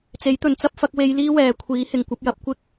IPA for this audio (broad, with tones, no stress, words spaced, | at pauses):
t͡se˨˥jt̪ɵ˨nt͡sɐ˥p̚fɐ˨˥k̚ we˧j liː˥wɛː˨kʷʰiː˨˥hɪ˨ŋ kʷɐ˨˥p̚jɐ˨˥p̚ kʷɪ˧k̚